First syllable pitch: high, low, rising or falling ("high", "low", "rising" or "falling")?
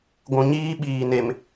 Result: low